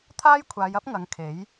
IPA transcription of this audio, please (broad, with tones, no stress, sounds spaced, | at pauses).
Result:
t̪ʰ aː˥ j kʷʰ aː˨˧ j ɐ˥ p̚ ŋ ɐ˨˧ ŋ kʰ e˨˥ j